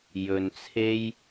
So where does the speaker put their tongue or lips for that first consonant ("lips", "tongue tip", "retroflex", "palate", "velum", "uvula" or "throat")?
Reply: palate